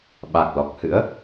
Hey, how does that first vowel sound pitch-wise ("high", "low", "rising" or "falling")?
low